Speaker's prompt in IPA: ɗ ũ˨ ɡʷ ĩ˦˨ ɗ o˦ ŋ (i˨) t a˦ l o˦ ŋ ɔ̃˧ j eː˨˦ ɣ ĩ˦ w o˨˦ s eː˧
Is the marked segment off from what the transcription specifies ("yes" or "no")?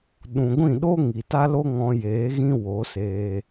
no